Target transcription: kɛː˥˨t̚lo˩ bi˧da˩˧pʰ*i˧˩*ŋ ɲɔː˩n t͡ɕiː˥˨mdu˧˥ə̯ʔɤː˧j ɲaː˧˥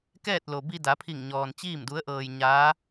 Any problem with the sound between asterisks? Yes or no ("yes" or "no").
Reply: no